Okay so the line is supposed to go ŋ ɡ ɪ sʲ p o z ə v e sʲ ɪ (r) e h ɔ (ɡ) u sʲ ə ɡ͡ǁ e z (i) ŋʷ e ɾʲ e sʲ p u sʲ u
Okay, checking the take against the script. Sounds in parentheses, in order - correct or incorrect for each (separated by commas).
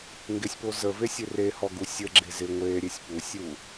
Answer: correct, correct, incorrect